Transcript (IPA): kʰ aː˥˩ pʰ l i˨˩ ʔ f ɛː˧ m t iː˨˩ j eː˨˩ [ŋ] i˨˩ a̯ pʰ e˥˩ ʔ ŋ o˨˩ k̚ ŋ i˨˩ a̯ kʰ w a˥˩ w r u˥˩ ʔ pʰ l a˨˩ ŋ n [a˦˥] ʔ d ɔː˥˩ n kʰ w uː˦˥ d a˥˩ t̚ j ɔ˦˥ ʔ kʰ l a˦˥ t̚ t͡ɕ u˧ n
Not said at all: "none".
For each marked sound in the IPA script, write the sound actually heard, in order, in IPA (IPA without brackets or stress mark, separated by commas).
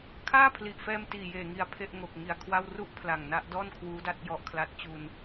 ŋ, a˦˥